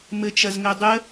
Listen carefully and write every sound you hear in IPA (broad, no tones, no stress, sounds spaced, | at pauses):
m ɘ t͡ʃ ɐ z ŋ ɜ dˤ ə